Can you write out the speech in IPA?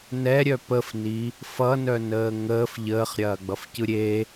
n ɛ ɾʲ œ p ə f n i | f ʌ n œ n əː ŋ əː f ʎ əː χ ɾʲ ɐː ɡ͡b ʌ f c ɯ ɾʲ e

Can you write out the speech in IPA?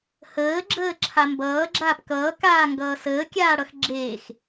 h əː ɡ͡ǁ əː ǁʰ a m b ʌː ɡ͡ǁ aː p k ʌː k aː ŋ ɡ ʌː s əː kʲ aː ɽ ʌ x ɡ͡ǁ eː x

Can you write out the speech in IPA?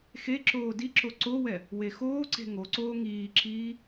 x e ǁ oː d i ǁ o ǀ o w ɛ | w e x oː ǀ e̤ ŋ o ǀ oː ŋ iː ǁ iː

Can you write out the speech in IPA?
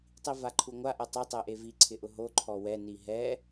tˤ i v a ǃʰ u ŋʷ a ʔ ɛ tˤ o tˤ e ʔ e v i ǀʰ ɪ ʔ ʊ ɦ o ǃʰ ɔ w ɛ n i ɦ ɛ

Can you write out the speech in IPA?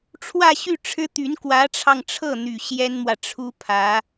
ʈ͡ʂʰ w ä˥˧ ɕ y˥˩ ʈ͡ʂʰ ɻ̩˥ t̪ y˧˥ n k w ä˧˥ ʈ͡ʂʰ ɑ˧ ŋ ʈ͡ʂʰ ɤ˥˩ n̪ y˨˩ ɕ j ɛ˥ n m w ä˨ ʈ͡ʂʰ u˥ pʰ ä˧˥

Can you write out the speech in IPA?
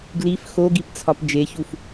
ɡ l i f x o ɡ i p t͡sʰ ɒ p d͡ʒ e ç u f

